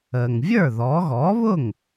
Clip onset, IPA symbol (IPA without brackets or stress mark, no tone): əː